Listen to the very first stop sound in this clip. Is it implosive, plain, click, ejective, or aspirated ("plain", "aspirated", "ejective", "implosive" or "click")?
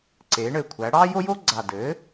click